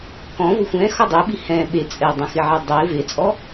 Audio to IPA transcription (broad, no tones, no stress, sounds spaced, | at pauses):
k ɔ̃ v ʊ xʷ ɛ̃ x ɔ dˤ e ɓ i h ɛ̃ ɓ e t͡sʼ ɛ dˤ ɛ̃ x ɪ ʕ e dˤ e v e t͡sʼ ɔ